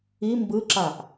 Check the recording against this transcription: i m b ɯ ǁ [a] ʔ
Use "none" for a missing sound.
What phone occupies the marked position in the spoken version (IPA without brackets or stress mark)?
a